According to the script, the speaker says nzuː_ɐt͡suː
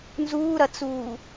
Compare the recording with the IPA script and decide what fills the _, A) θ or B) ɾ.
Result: B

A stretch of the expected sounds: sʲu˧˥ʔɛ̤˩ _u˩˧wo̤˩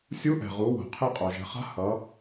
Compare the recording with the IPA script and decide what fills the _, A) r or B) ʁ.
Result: B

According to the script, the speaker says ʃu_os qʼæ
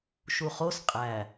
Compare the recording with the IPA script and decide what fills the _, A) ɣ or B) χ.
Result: B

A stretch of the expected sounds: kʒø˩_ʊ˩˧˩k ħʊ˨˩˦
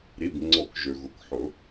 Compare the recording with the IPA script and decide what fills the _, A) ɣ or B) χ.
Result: A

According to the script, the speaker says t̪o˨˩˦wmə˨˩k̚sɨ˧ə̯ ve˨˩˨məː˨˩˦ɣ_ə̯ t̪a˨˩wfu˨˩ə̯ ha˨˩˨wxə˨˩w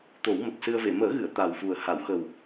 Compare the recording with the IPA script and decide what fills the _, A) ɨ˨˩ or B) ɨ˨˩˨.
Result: B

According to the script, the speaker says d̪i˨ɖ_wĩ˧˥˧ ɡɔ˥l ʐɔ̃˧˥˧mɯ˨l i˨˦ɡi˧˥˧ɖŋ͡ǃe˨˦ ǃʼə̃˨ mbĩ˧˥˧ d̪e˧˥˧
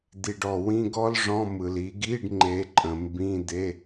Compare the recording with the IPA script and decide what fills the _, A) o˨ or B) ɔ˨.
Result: B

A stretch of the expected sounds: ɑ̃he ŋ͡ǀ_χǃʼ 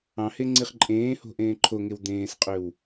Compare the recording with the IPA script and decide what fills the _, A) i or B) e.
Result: A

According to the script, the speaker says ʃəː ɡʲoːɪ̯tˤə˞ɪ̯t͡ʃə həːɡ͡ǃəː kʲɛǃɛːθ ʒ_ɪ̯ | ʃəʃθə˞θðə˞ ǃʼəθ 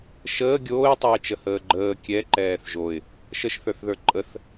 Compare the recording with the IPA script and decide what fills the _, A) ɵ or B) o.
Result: B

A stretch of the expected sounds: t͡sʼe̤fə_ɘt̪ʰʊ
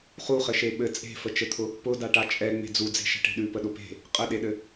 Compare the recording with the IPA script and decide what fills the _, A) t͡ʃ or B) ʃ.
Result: A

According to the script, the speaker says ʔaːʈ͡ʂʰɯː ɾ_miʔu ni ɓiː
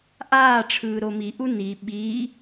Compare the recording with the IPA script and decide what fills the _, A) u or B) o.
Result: B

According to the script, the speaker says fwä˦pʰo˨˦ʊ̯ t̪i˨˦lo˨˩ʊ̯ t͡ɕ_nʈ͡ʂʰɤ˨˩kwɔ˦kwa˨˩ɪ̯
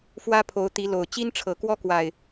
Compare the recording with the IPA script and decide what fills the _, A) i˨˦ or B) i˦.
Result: B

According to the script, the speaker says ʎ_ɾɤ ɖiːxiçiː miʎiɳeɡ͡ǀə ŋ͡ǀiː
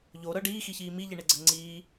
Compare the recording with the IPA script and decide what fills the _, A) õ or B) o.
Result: B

